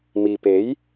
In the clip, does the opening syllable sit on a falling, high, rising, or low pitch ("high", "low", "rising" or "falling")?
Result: low